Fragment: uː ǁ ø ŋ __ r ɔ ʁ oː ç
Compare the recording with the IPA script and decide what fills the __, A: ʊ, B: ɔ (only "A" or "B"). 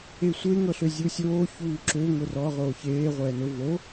A